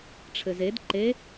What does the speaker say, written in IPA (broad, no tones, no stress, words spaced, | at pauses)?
ʈ͡ʂʰɘzed ǃe